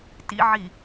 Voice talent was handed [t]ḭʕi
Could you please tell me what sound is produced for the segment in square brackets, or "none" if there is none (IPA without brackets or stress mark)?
t